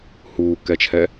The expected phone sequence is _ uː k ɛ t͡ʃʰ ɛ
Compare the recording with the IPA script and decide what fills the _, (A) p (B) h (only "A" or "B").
B